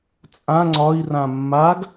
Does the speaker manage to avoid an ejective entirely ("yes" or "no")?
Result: no